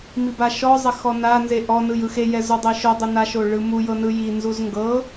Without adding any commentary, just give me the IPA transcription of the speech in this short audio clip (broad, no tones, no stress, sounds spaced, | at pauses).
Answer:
m i b a ʃ ɔ zˤ ɛ x ɔ n a n z e ʔ ɔ n ɯ j ɯ x e j ɛ z o dˤ e ʃ o dˤ ɯ n a ʃ o ɭ ɯ m u j ɤ n ɯ j i n z u z ŋ ɡ ɤ